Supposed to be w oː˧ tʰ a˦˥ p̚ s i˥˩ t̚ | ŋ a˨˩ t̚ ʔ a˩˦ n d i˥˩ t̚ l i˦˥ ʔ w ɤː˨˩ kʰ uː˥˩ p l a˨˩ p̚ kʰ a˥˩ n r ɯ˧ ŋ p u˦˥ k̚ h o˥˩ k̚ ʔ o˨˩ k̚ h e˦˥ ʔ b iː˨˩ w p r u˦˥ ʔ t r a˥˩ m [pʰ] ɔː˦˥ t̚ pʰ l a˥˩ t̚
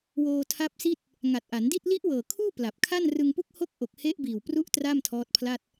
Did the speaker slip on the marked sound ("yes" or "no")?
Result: yes